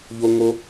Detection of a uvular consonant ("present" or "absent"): absent